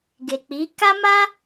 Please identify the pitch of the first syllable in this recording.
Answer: low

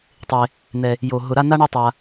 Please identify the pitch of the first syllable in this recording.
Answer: low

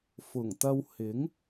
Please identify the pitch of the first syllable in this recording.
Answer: low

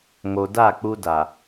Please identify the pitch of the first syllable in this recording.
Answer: low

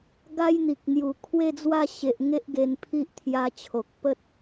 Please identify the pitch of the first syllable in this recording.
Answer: high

